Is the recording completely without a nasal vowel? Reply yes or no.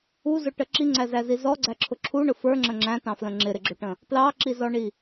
no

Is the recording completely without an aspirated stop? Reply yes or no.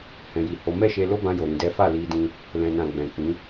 yes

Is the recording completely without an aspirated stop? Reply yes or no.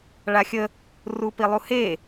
yes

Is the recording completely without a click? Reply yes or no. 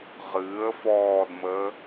yes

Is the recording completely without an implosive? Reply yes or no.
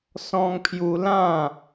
yes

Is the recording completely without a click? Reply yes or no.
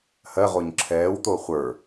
no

